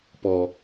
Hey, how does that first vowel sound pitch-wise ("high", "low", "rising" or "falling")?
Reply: low